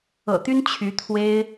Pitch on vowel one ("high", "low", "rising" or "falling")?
low